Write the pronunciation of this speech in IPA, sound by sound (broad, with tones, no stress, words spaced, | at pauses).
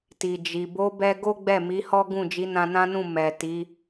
ti˨d͡ʒi˨ bo˨˦bɛ˧ ɡo˦ɡ͡bɛ˦˨mi˨˦hɔ˦ ɡũ˦˨d͡ʒi˨˦nã˧ nã˦nũ˦˨ mɛ˨ ti˨˦